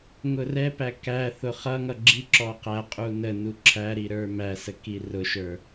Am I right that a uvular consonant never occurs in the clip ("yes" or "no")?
no